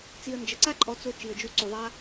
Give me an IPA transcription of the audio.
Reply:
t͡s i˨ ə̯ n d͡ʒ ə˨ ǀ a˦ ǃʼ ɔ˧ t͡s o˧ t͡ʃ i˨ ə̯ d͡ʒ u˧ ǀ u˨ ðˤ a˧

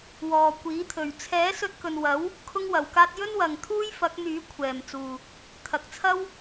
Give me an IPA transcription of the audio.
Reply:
w ɔː˨ kʷ iː˨˥ t̪ʰ ɵ˨ ɥ t͡sʰ ɛː˨˥ s ɵ˧ t̚ k ɵ˨ n w ɐ˨˥ w | kʰ ʊ˥ ŋ w ɐ˨ w k aː˥ t̚ j ɵ˥ n w ɐ˨ ŋ t̪ʰ uː˥ j f ɐ˨˥ k̚ n̪ yː˨˥ kʷʰ ɛː˨ m t͡s uː˨ | t̪ʰ ɐ˨ k̚ t͡sʰ ɐ˥ w

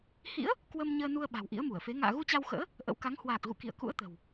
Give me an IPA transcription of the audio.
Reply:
h ḭ˧˥ ə̯ | k w ə˧ m ɲ əː˧ n u˧ ə̯ ɓ a̤˨˩ w ʔ ḭ˧˥ ə̯ m u˧˩ ə̯ f e˨˦ ŋ a̰ː˧˨ ɣ u˧ t͡ɕ a˧ w x ə̰ː˧˥ | ʔ ə̰˧˥ w k a˨˦ ŋ h w aː˨˩ k̚ ɣ ṵ˧˨ k ḭ˧˨ ə̯ k ṵ˧˥ ə̯ t̪ ə̤˨˩ w

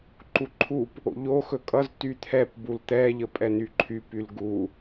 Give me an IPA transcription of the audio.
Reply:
ǃ u ǃʰ u p | o̰ ʎ o x ɵ kʼ ʌ z t y t̪ʰ ɛ p b u l t̪ ɛ ʎ ə pʼ ɛ n y ǃʰ y p y l ɡ u

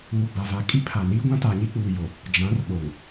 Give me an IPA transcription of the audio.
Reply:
uː˨ b a˨ v a˨ kʼ i˦ pʰ a˨ n iː˦ ɡʷ ã˦ t aː˨ ɲ i˦ k͡p uː˨ j o˨ | d͡ʒ ã˨˦ r ɓ o˨ ŋ

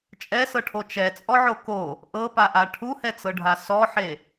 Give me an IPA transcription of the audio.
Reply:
t͡ʃʼ ɛ s ɤ ʈʰ o t͡ʃ ɛ t͡sʼ ɔ ʕ o k o | ʔ ɤ p a ʔ a ʈʰ u h ɛ t͡s ɤ ɖʱ a s ɔ ħ e

